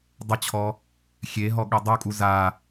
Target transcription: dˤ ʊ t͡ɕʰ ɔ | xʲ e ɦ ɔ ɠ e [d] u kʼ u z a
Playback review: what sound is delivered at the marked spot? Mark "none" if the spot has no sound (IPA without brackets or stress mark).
dˤ